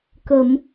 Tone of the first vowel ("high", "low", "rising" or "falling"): low